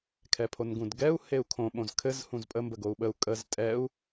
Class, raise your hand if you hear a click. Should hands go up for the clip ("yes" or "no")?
no